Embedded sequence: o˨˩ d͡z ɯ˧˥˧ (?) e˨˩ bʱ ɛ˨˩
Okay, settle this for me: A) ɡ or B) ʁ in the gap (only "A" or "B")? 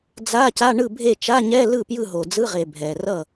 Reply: B